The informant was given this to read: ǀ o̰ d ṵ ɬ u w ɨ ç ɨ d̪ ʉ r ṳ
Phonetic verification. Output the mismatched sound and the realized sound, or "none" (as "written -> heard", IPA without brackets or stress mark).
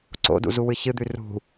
ɬ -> z